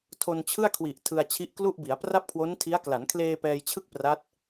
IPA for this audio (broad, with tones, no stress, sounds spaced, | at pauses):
tʰ o˧ n t͡ɕʰ ɯ˥˩ a̯ kʰ w i˨˩ ʔ tʰ ɯ˧ a̯ t͡ɕʰ i˦˥ ʔ k l u˥˩ ʔ b i˩˦ a̯ p r a˥˩ p̚ kʰ w o˦˥ n tʰ i˦˥ a̯ k l a˩˦ n kʰ l eː˧ p ɛː˧ j t͡ɕʰ ɯ˥˩ k̚ p r a˦˥ t̚